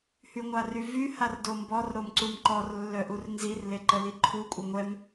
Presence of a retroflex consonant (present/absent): absent